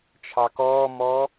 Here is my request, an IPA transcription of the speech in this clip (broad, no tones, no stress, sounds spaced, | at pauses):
t͡ʃʰ ɑ k ɔː m ɔ